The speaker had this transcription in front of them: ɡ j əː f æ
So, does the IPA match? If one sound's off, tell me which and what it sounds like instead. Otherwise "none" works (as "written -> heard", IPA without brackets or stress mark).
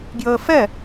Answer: æ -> ɛ